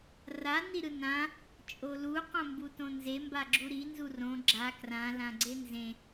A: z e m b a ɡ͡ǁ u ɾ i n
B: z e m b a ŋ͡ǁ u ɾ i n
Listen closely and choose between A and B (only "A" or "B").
A